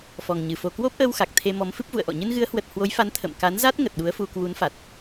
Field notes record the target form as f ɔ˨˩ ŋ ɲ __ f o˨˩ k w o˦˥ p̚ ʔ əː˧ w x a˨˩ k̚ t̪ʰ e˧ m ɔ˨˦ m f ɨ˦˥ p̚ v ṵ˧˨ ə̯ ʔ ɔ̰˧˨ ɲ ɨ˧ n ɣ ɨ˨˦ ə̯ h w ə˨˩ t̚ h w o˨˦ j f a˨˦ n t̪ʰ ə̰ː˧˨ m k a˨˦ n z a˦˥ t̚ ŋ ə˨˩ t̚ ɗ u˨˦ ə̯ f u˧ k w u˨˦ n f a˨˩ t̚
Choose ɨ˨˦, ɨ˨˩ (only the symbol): ɨ˨˩